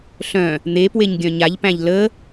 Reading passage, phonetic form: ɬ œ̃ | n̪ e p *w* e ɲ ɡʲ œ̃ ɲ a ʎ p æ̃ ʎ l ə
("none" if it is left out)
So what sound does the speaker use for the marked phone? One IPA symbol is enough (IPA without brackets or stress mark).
w